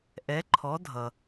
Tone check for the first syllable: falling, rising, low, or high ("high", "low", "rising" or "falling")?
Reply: rising